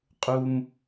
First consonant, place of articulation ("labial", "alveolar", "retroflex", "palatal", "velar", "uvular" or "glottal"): uvular